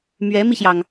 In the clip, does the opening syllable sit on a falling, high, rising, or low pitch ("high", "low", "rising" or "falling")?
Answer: rising